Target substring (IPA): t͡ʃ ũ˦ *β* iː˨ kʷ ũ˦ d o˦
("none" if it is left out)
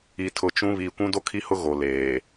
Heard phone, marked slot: β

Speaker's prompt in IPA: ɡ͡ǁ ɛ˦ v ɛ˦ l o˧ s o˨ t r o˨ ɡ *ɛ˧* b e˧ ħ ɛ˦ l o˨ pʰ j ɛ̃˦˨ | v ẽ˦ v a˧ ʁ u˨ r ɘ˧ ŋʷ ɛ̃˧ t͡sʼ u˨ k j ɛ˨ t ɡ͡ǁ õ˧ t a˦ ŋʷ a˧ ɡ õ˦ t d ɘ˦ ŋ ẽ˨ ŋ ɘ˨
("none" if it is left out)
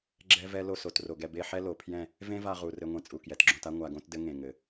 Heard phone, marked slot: ɛ˧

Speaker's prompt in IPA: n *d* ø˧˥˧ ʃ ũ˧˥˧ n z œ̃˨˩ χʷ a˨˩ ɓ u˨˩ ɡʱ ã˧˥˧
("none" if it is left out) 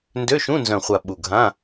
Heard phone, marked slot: d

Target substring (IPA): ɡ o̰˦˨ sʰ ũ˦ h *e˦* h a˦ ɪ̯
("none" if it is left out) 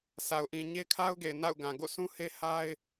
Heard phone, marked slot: e˦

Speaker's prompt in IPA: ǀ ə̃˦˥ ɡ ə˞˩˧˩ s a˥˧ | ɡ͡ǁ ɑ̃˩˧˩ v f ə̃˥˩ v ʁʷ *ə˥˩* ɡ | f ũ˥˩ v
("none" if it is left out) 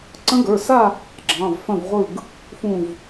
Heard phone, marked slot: ɯ˥˩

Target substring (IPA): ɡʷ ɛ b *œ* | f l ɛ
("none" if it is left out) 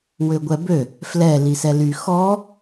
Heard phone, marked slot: ø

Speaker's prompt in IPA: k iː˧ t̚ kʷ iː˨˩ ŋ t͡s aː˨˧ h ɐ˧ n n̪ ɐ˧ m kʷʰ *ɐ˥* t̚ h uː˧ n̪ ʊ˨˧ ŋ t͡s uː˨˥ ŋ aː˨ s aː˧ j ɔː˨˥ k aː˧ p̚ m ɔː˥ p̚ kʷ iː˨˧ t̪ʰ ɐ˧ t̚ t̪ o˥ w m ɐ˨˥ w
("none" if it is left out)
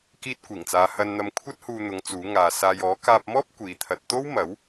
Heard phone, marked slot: ɐ˥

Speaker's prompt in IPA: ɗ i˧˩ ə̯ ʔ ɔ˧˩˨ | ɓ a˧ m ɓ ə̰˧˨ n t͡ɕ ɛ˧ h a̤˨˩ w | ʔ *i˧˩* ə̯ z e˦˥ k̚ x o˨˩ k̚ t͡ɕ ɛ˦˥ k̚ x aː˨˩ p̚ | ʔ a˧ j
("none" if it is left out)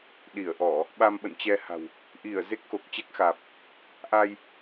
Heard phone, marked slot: i˧˩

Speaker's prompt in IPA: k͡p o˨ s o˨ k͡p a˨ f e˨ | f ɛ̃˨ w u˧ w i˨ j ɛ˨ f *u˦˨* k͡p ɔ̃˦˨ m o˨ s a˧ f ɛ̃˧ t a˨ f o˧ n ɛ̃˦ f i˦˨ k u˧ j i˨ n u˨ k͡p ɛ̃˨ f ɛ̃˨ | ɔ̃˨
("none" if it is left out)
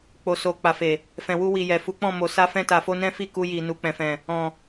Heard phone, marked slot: u˨˦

